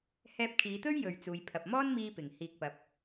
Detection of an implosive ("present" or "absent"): absent